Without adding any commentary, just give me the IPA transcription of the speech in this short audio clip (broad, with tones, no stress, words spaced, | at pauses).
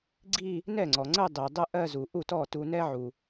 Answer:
ɡ͡ǀi˥˧ | nɛ˥˩ŋ͡ǀɔ˩ŋ͡ǀə˥˧ dˤi˩dˤə˥˧ ʔɜ˥˧zu˩ʔu˥˩ tɔ˥˩tu˧nɛ˥ʕu˩